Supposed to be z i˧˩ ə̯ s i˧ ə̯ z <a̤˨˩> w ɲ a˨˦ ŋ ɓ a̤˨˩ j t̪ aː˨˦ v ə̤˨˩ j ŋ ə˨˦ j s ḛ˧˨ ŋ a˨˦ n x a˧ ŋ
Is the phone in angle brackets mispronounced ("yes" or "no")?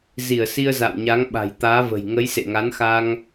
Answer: yes